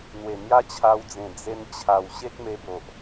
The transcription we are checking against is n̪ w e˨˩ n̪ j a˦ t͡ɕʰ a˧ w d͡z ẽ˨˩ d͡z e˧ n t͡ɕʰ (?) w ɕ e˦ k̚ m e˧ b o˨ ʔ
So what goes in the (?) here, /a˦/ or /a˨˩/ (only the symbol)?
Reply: a˨˩